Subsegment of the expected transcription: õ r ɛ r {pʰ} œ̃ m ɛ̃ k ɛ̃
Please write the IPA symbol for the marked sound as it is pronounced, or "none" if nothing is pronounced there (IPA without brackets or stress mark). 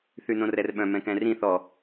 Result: ɓ